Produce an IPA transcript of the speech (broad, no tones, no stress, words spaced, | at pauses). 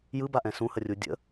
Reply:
jɯbaʔɛ̃ sũhərʲu dʲə̰